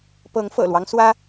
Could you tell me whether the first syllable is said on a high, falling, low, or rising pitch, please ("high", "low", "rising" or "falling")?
rising